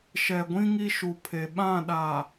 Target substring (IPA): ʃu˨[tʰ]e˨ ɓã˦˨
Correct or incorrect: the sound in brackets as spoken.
incorrect: pʰ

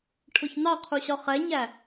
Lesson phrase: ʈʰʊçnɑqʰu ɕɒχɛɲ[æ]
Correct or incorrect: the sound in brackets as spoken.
correct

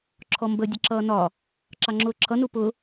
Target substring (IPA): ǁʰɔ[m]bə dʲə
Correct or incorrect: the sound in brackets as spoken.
correct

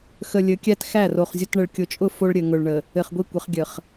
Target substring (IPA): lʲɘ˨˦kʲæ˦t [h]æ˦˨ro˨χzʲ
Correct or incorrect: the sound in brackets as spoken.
incorrect: x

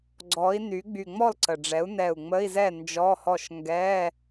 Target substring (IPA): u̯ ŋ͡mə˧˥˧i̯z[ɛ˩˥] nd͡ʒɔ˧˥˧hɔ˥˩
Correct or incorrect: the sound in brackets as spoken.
incorrect: ɛ˥˩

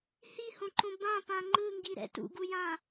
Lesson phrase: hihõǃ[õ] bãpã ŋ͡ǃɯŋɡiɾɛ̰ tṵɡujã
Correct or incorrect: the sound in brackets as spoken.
correct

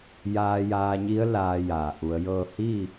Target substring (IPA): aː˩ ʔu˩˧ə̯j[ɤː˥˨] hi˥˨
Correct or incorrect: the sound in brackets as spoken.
correct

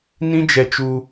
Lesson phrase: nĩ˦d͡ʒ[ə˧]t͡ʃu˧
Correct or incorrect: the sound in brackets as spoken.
incorrect: ɛ˧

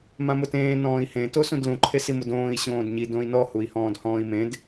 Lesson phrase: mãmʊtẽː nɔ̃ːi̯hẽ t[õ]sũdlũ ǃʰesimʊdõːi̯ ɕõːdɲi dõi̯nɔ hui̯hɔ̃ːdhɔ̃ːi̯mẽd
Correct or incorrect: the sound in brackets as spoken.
incorrect: o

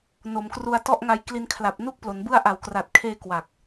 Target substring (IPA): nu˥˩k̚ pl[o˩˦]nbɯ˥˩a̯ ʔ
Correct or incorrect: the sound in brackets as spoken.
correct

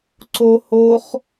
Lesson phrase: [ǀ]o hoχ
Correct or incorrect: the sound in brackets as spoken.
correct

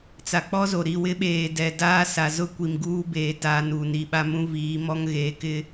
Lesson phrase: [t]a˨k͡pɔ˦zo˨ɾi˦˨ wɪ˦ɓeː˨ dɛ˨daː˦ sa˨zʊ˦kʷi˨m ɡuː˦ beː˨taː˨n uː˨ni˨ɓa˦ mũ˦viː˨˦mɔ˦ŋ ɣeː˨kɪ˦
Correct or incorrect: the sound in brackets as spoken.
incorrect: t͡s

